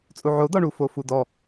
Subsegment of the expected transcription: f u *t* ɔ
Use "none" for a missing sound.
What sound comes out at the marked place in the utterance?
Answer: d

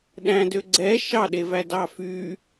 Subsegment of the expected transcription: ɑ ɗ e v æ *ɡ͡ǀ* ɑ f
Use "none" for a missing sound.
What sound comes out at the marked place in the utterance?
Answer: d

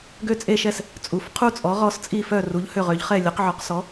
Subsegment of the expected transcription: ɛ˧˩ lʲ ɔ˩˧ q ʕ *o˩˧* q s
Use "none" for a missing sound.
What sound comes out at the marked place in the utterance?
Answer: ɔ˩˧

